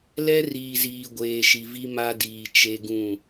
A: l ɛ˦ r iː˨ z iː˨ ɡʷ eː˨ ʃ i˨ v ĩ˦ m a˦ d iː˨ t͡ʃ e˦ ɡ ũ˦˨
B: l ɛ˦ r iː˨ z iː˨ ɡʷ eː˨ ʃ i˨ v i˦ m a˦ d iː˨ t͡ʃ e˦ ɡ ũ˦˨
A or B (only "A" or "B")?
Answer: B